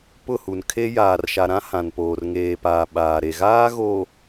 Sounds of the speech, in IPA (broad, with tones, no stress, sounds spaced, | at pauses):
p ʊ˦˨ h u˨ n kʰ e˦ j aː˨ r ʃ a˨ ɾ ã˦ h ã˨ n p oː˨ r ŋ eː˨ p aː˨ ɓ aː˨ ɾ e˨ ɣ aː˦ ɣ o˨